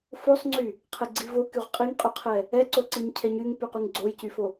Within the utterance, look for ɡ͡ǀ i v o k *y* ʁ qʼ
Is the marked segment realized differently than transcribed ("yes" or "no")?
no